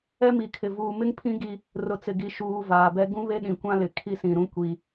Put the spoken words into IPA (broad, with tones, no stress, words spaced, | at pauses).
ɛ˦mi˨kʰɪ˨ vuː˨mɪ˦ŋpʰĩ˦ ɡi˦ | rʊ˨t͡sɪ˨ɡi˨ ʃuː˨ vaː˨bɛ˦ ɡũ˦βe˦ɗĩ˨kʷã˦ lɪ˨kʰi˦sĩ˨ɾũ˦ kʷi˦